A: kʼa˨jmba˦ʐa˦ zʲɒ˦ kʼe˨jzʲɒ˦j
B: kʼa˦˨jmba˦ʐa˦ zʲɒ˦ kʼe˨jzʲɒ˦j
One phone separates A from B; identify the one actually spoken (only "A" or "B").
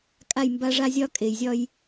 B